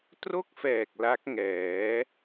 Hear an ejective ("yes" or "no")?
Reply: no